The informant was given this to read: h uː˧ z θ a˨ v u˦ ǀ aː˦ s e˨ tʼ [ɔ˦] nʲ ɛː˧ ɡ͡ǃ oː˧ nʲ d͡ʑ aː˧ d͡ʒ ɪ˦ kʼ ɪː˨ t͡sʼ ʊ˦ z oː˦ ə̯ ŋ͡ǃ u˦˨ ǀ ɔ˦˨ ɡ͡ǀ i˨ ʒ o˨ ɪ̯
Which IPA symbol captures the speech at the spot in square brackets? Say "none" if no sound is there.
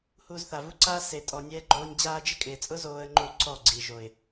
ɔ˨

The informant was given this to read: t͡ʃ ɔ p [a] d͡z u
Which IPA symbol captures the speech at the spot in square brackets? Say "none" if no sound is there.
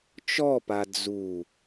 a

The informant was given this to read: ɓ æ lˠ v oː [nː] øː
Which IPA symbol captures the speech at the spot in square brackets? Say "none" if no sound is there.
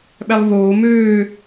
m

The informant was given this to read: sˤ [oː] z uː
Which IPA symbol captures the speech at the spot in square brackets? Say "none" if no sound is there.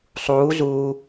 uː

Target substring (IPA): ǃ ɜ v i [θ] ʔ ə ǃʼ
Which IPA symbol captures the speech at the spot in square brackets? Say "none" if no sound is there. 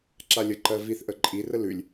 θ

